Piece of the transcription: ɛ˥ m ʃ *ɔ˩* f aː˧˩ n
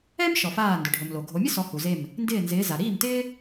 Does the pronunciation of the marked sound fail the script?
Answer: no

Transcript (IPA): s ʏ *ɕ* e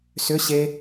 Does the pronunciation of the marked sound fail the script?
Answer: no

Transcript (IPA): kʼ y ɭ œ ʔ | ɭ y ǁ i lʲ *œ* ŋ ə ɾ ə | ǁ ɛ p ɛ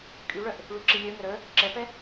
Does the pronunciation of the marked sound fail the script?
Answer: no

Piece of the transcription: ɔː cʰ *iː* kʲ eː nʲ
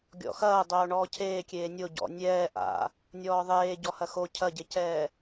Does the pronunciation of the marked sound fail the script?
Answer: yes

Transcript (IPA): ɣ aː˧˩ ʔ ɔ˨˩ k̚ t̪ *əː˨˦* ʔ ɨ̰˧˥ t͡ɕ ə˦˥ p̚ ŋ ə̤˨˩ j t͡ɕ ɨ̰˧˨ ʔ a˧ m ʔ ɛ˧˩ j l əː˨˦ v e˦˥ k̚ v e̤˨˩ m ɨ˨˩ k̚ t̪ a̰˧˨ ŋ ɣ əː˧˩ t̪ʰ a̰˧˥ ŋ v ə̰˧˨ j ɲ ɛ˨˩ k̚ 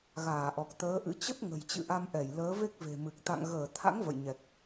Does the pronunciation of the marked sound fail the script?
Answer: no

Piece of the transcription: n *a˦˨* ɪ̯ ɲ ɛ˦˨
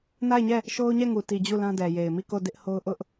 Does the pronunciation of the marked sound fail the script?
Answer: no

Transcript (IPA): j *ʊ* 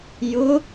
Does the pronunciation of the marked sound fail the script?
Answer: no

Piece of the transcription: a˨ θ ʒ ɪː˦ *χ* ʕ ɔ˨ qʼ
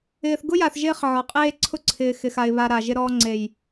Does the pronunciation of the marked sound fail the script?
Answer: no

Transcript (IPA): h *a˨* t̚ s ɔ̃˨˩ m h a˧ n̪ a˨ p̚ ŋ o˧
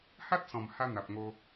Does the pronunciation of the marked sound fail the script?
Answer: yes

